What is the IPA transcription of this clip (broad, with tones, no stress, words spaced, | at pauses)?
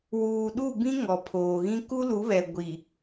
wuː˨ɗu˦˨bĩ˦ ŋɔ˨pʰoː˨ɣĩ˦ ku˦lu˨˦βɛ˨ ɡʷi˨